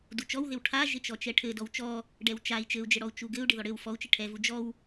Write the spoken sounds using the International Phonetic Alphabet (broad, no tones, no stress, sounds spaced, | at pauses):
d u t͡ʃ ɔ w ð ɪ w ʈʰ a ʒ ɪ t͡ʃ ɔ t͡ʃ ɛ ʈʰ ɘ d ɔ w t͡ʃ ɔ | ɖ ɛ w t͡ʃ a i̯ t͡ʃ ɘ u̯ d͡ʒ ɘ ɽ ɔ u̯ t͡ʃ u ɡ ɘ u̯ ɖ ɪ ð ɔ ɽ ɘ w f ɔ u̯ t͡ʃ ɪ ʈʰ ɛ v u d͡ʒ ɔ w